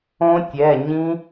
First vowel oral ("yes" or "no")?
no